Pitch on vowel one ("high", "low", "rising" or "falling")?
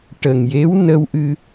low